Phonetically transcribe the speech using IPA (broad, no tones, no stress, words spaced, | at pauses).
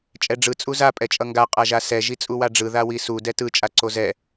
t͡ʃʼɛɖ͡ʐɯ t͡sʼuza pʼɛt͡ʃʼʌŋɡa qʼaʒasɛ ʒit͡sʼuwaɖ͡ʐɯ ðawisu dɛtɯ t͡ʃʼaǀozɛ